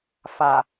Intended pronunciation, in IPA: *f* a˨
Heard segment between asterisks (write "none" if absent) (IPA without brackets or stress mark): f